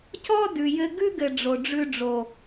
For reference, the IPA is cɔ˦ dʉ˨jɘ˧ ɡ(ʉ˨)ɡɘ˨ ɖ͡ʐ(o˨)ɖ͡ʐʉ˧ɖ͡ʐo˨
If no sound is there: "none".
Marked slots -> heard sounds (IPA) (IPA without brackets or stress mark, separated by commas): ʉ˦, o˨